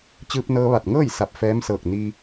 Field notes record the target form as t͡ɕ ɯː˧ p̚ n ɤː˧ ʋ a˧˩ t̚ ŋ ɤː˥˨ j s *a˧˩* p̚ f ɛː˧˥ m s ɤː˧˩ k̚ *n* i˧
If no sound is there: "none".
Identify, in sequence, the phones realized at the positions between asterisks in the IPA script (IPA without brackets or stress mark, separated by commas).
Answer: a˧˩, n